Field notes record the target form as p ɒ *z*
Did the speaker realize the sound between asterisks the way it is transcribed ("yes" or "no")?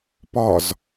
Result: yes